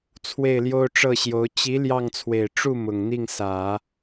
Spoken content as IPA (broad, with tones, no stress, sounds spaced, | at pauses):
t͡sʰ w e˥˩ ɪ̯ l j o˥ ʊ̯ ʈ͡ʂ ɤ˥˩ ɕ j o˧˥ ʊ̯ t͡ɕ i˧˥ l j ɑ˥˩ ŋ t͡sʰ w e˨˩ ɪ̯ ʈ͡ʂ u˥˩ m ʊ˨˩ ŋ n̪ i˥˩ ŋ s ä˨˩˦